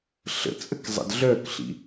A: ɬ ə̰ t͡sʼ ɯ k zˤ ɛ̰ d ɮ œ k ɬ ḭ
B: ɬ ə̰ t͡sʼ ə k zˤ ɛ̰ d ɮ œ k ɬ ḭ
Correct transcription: B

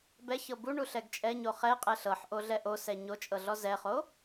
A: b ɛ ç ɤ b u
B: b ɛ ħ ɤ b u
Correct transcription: A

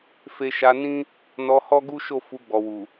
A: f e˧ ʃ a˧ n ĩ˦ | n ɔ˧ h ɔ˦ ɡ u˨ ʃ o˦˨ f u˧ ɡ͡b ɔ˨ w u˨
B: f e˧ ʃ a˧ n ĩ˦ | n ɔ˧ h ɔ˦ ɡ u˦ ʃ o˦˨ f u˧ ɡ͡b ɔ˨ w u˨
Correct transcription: B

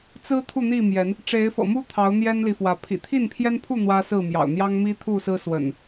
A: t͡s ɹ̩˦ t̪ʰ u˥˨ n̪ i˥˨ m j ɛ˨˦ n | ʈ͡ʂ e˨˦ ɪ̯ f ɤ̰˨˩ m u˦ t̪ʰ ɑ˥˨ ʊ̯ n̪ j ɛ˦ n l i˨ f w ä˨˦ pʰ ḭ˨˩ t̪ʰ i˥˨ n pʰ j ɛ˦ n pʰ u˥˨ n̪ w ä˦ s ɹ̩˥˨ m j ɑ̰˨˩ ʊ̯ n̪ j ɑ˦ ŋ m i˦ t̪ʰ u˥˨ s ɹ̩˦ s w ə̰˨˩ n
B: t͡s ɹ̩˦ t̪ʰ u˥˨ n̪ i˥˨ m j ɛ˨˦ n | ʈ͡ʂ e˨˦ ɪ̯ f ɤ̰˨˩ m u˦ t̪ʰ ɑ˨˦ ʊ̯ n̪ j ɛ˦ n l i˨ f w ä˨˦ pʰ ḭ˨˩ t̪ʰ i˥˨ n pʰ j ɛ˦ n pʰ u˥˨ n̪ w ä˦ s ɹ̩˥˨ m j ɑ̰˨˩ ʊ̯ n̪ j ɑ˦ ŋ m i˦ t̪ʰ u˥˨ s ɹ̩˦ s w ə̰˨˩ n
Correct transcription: B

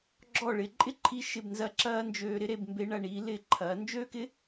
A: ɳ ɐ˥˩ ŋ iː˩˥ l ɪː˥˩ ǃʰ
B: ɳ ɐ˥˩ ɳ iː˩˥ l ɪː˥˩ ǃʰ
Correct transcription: B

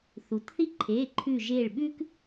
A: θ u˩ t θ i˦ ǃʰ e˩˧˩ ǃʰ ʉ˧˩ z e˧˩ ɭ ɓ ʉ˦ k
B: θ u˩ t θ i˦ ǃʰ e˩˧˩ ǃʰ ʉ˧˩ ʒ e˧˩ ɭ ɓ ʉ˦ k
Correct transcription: B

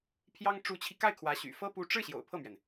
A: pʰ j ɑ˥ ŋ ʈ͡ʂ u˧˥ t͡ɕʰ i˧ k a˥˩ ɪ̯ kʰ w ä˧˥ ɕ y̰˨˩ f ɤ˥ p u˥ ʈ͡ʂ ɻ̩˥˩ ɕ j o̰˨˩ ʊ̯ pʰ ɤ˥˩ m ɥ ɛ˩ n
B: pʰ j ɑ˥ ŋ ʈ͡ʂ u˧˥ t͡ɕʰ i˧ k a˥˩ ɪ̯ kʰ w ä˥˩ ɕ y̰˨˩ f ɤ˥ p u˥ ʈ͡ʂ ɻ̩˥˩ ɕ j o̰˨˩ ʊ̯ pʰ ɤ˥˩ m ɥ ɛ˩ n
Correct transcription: A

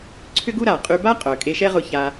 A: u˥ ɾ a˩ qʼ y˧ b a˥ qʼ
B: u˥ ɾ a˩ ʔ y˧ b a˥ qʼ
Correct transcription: A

